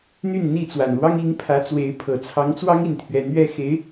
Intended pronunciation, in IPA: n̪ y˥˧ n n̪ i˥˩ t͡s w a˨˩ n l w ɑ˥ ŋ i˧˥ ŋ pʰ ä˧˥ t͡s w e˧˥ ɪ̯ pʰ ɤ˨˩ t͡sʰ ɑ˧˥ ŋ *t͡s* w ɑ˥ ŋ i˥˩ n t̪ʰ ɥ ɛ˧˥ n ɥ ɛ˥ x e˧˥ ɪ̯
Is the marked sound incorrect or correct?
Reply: correct